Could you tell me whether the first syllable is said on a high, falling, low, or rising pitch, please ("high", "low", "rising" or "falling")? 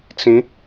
rising